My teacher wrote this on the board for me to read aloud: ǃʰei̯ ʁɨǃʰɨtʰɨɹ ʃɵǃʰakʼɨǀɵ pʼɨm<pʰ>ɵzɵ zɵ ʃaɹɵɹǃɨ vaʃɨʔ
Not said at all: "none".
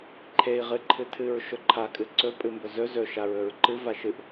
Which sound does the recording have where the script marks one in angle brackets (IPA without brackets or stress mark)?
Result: b